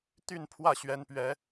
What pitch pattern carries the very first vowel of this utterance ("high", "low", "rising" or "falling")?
falling